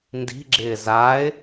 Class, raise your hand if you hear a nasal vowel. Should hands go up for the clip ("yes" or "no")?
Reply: no